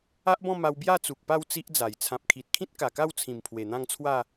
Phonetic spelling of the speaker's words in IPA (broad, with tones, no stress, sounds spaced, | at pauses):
a˦ ʔ b ɔ̃˥˧ m a˧ w b j a˥˧ t͡s u˨ k̚ p a˥˧ w t͡s i˦ ʔ d͡z a˨˩ j t͡sʰ ã˨ p̚ kʰ i˨ t̚ kʰ ĩ˦ t̚ k a˨˩ k a˥˧ w t͡sʰ ĩ˨˩ m pʰ w e˨˩ n̪ ã˥˧ ŋ t͡sʰ w a˥˧